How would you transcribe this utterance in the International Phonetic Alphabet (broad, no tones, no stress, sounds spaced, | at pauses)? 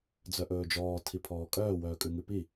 d͡z œ ʔ ɵː d͡ʒ ɔː tʰ i pʰ ɔː kʼ œː w œː kʼ ʉ ŋ ʉ p i